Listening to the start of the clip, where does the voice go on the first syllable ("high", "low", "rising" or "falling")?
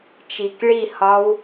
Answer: low